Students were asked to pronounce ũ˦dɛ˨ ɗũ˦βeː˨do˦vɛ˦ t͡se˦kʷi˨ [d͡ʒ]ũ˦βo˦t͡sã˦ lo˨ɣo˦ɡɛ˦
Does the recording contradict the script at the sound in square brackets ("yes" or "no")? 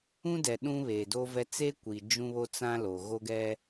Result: no